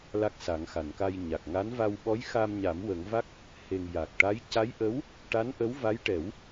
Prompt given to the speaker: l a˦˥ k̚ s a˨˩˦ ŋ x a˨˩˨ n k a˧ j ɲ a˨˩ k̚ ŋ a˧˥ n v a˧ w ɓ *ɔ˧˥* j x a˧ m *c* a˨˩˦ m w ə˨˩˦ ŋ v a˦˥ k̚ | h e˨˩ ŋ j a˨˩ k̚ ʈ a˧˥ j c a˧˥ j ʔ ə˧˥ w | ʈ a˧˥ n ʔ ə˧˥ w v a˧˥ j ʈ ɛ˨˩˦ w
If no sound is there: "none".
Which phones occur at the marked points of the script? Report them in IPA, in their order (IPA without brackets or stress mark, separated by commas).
ɔ˧˥, ɲ